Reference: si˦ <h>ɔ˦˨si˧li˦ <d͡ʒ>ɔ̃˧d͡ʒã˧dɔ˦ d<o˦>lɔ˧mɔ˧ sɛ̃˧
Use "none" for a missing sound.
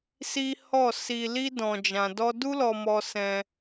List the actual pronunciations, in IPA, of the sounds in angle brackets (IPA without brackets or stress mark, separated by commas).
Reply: h, d, u˦